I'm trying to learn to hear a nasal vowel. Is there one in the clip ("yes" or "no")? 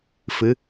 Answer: no